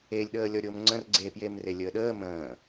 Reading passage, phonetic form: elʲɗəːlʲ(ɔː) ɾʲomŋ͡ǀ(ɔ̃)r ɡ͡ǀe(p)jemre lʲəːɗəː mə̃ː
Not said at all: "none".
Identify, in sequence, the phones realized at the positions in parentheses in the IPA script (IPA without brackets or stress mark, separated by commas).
ɔ, ə̃, p